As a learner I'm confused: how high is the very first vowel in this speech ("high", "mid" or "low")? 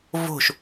mid